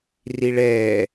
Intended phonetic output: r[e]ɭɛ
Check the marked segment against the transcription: incorrect: i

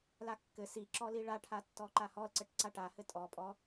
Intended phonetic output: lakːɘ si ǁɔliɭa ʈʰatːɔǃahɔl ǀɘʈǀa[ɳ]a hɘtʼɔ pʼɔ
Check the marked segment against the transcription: incorrect: ʈ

